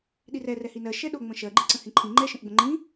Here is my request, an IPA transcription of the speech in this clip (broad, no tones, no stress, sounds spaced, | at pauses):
ɗ i r ɛ r ɛ h i n ɜ ʃ ɛ ɗ o ŋ͡m ə̃ ʃ ɜ ɡ͡ǃ i ǀ ə̃ h ĩ ǃʰ ĩ ŋ͡ǃ ɛ ʃ ə̃ ʔ ɡ͡b ə̃ ŋ͡ǃ ĩ